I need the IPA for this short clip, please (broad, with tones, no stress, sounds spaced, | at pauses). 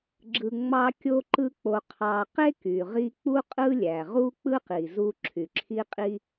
ɡ͡ǁ ɯ˧ ŋ͡m ɑ˥ kʲ o˥ ǃ ɯ˥ k͡p o˧ qʰ ɑ˧ q e˥ k y˩ ʁ i˧ k͡p u˥ qʼ ɯ˥ lʲ æ˩ ʁ u˥ k͡p ɯ˥ q i˩ z u˧ ǁʰ y˩ ǁʰ i˥ qʼ i˥